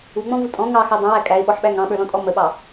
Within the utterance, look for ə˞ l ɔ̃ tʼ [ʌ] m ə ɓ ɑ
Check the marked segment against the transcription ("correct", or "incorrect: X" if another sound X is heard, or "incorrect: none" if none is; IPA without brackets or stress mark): incorrect: ɔ